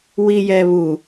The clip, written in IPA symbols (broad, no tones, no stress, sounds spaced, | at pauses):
w i j ɛ β u